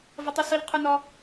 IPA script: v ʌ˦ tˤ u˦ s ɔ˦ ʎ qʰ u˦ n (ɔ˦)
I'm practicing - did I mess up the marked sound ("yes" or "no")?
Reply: no